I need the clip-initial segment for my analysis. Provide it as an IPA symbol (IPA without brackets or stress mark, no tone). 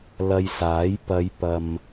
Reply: l